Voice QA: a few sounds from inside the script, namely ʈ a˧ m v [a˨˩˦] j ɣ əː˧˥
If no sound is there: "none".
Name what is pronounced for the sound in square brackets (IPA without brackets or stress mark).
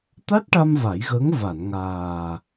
a˨˩˦